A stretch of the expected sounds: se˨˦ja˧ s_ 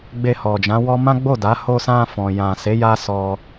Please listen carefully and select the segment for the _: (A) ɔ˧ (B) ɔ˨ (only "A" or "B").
A